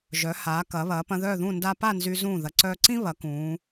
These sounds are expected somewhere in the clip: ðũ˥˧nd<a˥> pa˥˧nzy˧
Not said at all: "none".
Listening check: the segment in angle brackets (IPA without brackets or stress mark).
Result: a˥